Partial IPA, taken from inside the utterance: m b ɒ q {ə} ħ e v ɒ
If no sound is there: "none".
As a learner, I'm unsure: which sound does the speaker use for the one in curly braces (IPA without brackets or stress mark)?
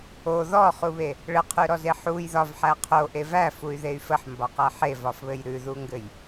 æ